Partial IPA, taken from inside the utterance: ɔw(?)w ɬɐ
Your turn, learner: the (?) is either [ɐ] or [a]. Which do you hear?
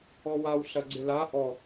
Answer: a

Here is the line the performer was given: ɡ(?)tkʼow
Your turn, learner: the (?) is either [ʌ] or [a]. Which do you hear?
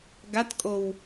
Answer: a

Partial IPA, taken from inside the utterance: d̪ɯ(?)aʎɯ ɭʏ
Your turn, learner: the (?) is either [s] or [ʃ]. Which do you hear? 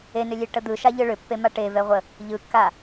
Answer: ʃ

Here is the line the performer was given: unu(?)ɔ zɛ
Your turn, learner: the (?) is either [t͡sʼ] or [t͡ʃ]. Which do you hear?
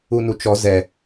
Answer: t͡ʃ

